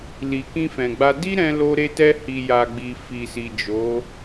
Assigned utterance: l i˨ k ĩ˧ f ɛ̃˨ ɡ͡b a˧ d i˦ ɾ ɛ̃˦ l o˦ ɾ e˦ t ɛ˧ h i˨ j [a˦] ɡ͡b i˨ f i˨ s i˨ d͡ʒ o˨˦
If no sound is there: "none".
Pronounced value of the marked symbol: a˨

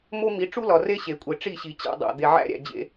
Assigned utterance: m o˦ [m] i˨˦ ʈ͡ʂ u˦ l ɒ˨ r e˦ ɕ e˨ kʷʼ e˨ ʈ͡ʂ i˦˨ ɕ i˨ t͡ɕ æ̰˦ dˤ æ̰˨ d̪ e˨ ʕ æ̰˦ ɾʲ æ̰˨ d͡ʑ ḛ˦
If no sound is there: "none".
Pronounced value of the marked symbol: m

